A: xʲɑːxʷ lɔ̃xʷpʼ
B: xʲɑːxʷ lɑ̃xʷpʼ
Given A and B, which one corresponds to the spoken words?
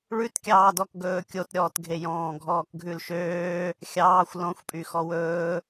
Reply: A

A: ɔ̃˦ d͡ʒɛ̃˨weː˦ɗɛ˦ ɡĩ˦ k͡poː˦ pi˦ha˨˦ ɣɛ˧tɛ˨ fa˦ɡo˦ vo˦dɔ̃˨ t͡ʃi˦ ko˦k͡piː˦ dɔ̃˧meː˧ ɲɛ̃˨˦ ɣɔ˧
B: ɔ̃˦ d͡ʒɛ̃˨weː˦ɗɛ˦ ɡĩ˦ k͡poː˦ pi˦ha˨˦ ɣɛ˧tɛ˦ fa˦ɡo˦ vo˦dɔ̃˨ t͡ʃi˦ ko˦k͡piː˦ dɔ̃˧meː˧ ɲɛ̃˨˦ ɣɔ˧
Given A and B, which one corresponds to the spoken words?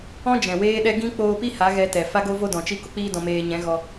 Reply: A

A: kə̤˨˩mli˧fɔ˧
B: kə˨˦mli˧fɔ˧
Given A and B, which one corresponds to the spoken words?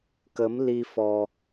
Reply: B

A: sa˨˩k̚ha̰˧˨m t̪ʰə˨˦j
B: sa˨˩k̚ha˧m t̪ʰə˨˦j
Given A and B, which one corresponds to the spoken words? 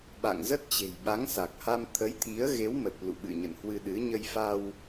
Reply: B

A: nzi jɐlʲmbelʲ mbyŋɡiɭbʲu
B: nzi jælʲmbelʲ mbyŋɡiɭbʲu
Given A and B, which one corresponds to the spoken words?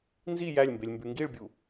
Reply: B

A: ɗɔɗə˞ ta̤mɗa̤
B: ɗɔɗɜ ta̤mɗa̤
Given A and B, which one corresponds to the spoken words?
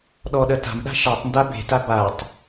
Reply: B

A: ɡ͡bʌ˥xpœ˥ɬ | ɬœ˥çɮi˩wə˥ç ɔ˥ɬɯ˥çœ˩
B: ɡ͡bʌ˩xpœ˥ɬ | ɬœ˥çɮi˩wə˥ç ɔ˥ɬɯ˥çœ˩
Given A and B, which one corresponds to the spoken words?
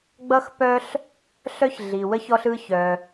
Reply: A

